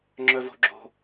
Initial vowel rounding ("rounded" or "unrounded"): rounded